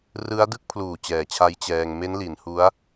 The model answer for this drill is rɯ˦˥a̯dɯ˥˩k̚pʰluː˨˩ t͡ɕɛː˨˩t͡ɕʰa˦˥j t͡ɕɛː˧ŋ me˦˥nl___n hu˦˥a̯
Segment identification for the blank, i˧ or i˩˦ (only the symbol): i˩˦